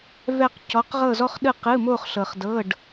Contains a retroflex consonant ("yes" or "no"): yes